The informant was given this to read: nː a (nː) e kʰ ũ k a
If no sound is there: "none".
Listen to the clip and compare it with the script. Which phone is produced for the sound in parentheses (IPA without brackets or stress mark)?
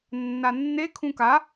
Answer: nː